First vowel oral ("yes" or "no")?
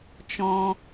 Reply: no